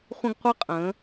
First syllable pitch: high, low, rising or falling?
high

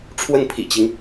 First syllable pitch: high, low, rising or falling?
falling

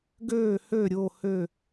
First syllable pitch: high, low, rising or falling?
falling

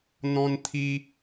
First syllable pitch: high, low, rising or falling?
high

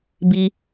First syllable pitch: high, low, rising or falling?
high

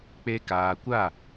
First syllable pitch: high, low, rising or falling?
high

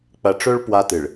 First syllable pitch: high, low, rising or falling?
low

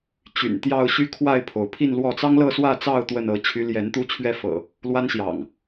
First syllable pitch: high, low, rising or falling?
low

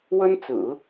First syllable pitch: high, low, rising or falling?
high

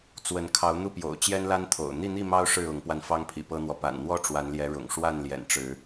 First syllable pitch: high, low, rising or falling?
rising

